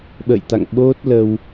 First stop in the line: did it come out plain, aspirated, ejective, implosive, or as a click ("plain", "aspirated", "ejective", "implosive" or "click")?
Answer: implosive